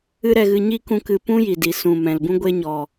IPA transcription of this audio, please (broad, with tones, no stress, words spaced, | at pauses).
ɨ˦ɾɛ˧ɣɨ˧ ɲiː˦k ũ˦kɨ˧ pũ˦ ji˨di˨ sũ˨ mɛ̃˨lbũ˦ɡʷe˦ɲɔ˨